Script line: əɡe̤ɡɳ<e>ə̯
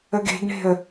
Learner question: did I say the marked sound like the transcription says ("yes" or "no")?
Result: no